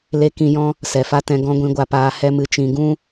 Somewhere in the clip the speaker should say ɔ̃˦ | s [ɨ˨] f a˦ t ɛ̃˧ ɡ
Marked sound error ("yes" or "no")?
yes